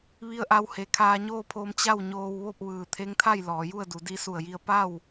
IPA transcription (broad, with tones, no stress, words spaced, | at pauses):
ʋi˧ə̯ʔa˧w he˩kʰaː˧ɲoː˥˨pʰoː˧m t͡ɕa˥˨wɲoː˧w ʋo˥˨p̚ʋɯː˧˩ t̪ʰe˧˥ŋt̪ʰa˥˨j lɔː˩˧ju˥˨ə̯du˩˧ di˧su˧˩ə̯ji˧ə̯ pa˥˨w